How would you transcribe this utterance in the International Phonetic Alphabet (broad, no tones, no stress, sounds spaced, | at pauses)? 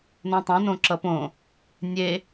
n õ tˤ õ n õ ǁ ʌ p õ | nʲ e